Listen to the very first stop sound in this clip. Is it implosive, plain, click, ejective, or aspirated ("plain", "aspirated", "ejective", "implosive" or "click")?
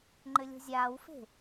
click